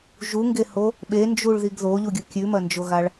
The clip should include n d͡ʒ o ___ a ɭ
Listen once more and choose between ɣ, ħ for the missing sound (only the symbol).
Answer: ɣ